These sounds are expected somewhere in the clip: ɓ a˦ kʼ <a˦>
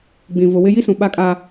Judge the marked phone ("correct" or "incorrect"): correct